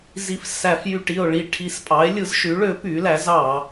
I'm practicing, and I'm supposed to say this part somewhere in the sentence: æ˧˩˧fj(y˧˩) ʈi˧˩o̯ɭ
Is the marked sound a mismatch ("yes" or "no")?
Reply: no